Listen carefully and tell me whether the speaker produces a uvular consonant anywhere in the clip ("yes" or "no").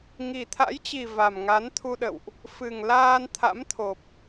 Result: no